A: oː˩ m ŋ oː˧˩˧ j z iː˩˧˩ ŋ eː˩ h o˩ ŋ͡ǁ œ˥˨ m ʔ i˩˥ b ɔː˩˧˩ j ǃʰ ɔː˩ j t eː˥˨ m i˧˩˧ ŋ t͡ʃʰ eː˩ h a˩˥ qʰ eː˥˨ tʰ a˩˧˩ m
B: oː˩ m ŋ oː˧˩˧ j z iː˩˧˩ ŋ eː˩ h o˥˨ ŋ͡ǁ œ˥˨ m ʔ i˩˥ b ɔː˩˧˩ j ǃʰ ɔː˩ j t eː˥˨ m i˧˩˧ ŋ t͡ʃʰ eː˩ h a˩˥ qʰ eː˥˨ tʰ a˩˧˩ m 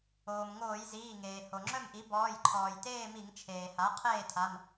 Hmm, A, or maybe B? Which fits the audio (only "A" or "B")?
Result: A